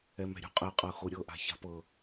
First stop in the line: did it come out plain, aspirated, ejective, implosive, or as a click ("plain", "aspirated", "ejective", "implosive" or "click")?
ejective